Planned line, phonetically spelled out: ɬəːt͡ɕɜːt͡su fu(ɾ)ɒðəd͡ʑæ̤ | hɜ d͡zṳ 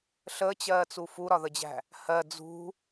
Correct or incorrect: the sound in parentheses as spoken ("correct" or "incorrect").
correct